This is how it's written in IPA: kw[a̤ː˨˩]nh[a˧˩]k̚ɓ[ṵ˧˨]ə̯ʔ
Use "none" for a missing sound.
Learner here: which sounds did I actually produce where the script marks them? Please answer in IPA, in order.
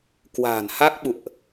a̤ː˨˩, a˦˥, ṵ˧˨

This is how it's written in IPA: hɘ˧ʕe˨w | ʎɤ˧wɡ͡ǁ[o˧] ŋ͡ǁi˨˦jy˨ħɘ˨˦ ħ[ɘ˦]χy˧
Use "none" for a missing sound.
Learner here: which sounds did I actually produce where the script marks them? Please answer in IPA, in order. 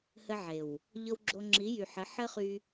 o˧, ɘ˦

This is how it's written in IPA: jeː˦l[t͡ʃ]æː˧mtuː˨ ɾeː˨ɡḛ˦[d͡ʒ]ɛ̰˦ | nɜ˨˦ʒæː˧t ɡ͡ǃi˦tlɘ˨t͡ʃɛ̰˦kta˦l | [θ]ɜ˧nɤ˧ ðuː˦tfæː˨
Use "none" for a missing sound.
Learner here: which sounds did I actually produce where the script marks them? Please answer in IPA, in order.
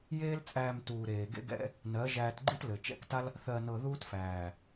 t͡sʼ, ɡ, θ

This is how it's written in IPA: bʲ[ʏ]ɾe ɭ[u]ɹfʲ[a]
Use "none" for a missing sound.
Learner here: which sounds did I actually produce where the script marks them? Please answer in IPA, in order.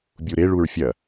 u, u, ɐ

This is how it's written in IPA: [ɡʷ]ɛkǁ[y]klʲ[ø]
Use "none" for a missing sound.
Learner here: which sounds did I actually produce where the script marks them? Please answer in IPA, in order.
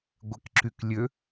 ɡʷ, y, ø

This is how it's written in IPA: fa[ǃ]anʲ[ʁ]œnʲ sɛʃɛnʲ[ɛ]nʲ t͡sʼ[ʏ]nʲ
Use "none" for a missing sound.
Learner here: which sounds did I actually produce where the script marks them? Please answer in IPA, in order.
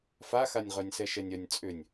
x, ʁ, œ, ʏ

